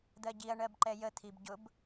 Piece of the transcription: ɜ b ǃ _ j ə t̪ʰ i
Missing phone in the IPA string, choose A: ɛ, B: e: A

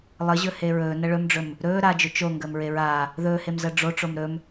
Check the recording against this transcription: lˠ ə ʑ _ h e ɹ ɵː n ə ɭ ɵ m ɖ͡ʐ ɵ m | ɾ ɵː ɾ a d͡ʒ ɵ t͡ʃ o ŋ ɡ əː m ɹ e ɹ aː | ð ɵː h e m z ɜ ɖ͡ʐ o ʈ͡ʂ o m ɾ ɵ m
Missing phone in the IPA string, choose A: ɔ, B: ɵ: B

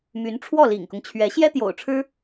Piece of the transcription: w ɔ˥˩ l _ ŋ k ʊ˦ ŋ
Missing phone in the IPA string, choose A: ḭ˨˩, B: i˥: A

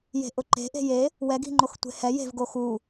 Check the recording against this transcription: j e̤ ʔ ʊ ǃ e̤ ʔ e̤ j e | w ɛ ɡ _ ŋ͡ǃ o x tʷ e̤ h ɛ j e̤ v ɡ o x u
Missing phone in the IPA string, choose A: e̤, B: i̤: B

